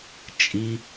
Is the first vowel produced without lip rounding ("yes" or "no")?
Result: yes